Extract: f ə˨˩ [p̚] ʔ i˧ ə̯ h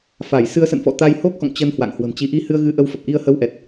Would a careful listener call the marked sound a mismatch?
no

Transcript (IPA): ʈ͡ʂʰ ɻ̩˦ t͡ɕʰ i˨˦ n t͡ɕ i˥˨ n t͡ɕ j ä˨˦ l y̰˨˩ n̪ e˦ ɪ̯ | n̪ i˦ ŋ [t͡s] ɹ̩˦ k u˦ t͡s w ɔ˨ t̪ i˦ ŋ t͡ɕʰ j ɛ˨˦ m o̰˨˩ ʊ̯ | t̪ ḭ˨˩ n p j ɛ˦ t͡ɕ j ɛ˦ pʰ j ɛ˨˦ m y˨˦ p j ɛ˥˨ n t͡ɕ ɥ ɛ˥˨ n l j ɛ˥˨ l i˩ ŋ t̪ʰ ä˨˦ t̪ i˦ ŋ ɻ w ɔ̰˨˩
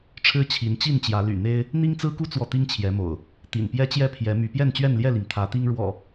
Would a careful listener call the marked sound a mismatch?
no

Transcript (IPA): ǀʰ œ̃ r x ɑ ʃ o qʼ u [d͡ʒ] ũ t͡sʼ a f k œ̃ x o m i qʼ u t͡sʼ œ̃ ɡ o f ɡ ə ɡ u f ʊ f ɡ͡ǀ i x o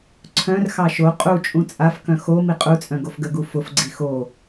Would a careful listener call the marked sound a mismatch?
yes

